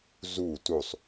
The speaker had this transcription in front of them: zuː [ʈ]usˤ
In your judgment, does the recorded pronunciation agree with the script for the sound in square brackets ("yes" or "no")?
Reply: no